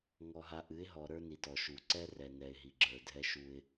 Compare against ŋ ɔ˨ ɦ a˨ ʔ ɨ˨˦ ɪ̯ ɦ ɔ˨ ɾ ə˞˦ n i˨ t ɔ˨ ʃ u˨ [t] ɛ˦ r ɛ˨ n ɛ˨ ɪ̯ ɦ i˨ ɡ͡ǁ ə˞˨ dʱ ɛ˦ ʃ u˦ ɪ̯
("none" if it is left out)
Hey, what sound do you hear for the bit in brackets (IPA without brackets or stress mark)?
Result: ǀ